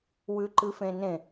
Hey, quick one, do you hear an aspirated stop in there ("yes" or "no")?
no